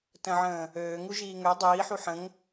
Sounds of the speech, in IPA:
t ə̃ ʕ ə̃ː | øː ŋ u ʒ iː ŋ ø dˤ iː ħ u ħ ə̃ ŋ

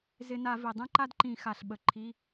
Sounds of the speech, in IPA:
z ɪ˧˩˧ n a˧˩˧ v i˩ dˤ ẽ˥ ǃ a˥ d ǃ ĩ˧˩˧ x a˩ ɬ ɓ ə˩ ǃʰ i˩˧˩

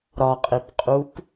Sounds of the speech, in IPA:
ɾ ɒ qʼ e p qʼ u p

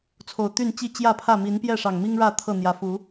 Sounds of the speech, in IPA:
t͡sʰ o˨˩ ʊ̯ t̪ y˥˨ n t͡ɕ i˥˨ t͡ɕ j ä˥˨ pʰ ä˥˨ m i˨˦ n p j ɛ˥˨ ʂ ɑ˨˩ ŋ m i˦ ŋ ɻ ä˥˨ t̪ʰ ɤ˥˨ n̪ j ä˨˦ f u˨˦

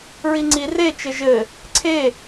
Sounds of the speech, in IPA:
ɹ i ŋ͡ǀ i r e t͡ʃ ɘ ʒ ɘ | ǀʰ e

